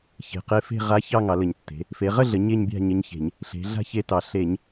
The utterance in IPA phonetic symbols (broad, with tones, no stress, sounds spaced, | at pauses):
ç e̤˩˧ q e˧˥ f e̤˥˧ ʁ a˧˥ ç ɑ˥˧ ŋ ɑ˩˧ l ə˧˩˧ ɲ tː e̤˩˧ | f e˩˧ ʁ ə˥˧ ɮ ə˩˧ ɲ e˥˧ ɲ bʲ a̤˥˧ ɲ ə˧˥ ɲ ç e̤˧˩˧ ɲ | ɬ e̤˩˧ ɮ a̤˥˧ ç e˧˥ t ɑ˩˧ ɬ e˧˩˧ ɲ